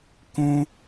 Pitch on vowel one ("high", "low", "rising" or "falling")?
high